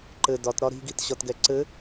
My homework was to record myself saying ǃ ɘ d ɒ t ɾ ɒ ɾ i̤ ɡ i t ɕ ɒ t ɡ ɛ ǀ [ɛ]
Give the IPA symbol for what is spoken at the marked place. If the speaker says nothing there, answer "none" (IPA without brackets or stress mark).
ɘ